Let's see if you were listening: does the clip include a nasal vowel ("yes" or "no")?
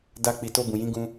yes